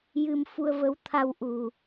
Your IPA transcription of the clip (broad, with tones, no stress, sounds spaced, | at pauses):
j ɨ˧ m f u˧ ə̯ v ə˧˥ w t̪ʰ a˧ w ʔ u˨˩